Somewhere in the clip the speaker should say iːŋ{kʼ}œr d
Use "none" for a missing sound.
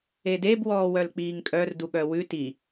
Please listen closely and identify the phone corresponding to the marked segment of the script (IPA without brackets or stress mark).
kʼ